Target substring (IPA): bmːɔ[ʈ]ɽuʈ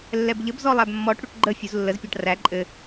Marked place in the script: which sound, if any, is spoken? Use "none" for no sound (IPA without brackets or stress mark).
ʈ